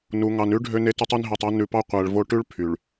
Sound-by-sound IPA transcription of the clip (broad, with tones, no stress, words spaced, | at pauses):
nu˨ŋɑ˨n ʉ˦ ɖʱø˦ne˦tʉ˦tˤy˦n ɦe˨tˤo˦ nʉ˨pɑ˦ qʷæ˨ɭvo˦ ʈʉ˦ɭ pʰy˨ɭ